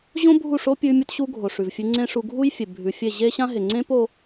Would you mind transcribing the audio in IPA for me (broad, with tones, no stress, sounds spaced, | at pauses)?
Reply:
ʑ õ˦ bʱ u˦˨ ʂ o˦ pʲ ʉ˧ mʲ ɵ˧ t ɕ u˧ ɡʱ o˨ ʂ ʉ˨ v fʲ ʉ˧ ŋ͡ǀ ẽ˦ ʂ u˧ ɡʱ u˦ j fʲ e˨ bʱ ʉ˨ fʲ e˦˨ ʑ e˦ ɕ ã˦ ɦ e˨ ŋ͡ǀ ẽ˦ p o˧